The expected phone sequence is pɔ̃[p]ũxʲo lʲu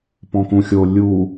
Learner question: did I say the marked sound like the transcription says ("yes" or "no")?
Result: no